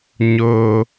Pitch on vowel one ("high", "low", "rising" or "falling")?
high